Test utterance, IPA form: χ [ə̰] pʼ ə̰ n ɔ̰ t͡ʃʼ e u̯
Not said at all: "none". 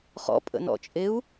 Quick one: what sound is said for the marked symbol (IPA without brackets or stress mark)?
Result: ɔ̰